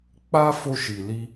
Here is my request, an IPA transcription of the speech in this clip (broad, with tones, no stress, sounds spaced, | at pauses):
k͡p a˦ f o˧ ʃ i˨ l i˧